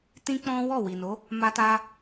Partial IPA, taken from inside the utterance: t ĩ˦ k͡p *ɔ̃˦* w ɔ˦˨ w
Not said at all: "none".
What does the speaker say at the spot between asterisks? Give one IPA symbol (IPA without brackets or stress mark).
ɔ̃˦